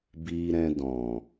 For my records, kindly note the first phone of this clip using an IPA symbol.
b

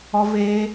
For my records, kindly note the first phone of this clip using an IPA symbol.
ɔ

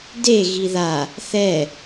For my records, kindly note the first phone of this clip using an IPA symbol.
d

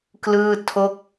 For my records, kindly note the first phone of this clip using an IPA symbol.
k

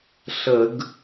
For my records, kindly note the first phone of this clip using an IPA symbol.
ɬ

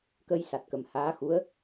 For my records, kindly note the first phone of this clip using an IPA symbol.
k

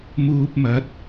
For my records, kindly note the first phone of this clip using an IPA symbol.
m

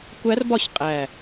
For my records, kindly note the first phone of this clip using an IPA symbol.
kʷ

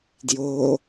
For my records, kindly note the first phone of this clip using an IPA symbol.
d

